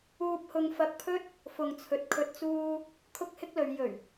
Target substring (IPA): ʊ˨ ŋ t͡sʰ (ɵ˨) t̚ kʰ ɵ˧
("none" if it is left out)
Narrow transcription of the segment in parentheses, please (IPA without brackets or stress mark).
ɵ˨